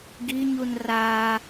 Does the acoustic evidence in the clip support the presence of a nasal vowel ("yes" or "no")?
no